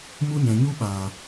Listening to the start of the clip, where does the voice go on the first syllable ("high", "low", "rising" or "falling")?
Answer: high